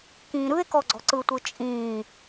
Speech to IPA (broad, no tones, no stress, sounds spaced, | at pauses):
k ĩː ɾ ɯ e̯ k ɔ ɡ͡ǀ ɔ̤ ǀ ɯ tʷ ɯ t͡ʃʼ ĩː